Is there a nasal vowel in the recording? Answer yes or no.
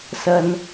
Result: no